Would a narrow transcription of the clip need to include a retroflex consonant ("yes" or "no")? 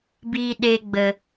no